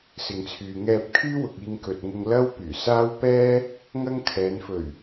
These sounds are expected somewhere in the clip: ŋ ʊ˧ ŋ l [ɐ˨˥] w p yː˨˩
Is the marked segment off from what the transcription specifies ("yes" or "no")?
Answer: yes